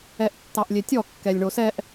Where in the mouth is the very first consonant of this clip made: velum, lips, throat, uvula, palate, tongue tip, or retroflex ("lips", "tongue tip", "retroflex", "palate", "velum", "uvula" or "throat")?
throat